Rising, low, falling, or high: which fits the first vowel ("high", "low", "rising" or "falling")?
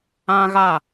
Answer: high